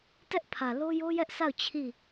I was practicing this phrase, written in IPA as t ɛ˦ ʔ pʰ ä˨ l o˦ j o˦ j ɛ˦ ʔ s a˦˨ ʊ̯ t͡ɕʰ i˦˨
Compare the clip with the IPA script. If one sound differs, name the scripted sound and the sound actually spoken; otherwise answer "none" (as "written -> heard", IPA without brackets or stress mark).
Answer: none